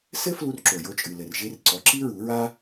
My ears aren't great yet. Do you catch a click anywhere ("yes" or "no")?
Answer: yes